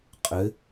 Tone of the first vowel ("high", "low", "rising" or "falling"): rising